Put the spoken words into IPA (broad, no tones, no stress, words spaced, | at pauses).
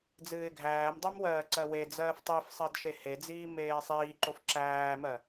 d͡zɨːɪ̯ɡʱæːmdˤæm wɜːǀɜwed͡zɜːf tˤif sˤɜdʃehed͡ziː meːsˤiːǃof ǁæːmɜ